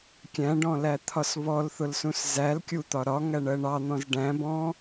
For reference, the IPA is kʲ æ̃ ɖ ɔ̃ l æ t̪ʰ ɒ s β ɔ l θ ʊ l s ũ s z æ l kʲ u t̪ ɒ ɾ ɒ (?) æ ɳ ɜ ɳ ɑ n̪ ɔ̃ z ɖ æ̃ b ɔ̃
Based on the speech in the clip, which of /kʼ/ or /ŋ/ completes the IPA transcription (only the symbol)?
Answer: ŋ